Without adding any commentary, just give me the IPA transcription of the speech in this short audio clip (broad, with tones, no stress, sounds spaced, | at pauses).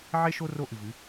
ʕ e˦ ʃ o˦ r o˦ ʔ ɨ˨ v ɨ˨˦